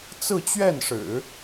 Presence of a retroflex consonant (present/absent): present